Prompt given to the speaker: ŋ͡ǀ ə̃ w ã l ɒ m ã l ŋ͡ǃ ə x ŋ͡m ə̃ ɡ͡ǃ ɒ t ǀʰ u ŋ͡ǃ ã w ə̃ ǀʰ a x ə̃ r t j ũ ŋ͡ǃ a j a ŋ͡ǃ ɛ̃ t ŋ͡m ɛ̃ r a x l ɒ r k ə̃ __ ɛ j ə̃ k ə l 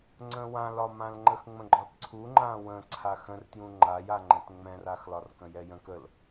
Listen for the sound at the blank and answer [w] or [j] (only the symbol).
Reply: j